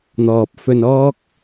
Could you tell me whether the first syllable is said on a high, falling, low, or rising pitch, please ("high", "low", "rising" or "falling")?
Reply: low